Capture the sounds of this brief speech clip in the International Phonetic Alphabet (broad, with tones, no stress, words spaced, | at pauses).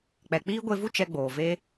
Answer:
k͡pɛ˨k͡piː˦ ɡʷe˧vu˦ t͡ʃɛ˧ɡ͡boː˨ve˦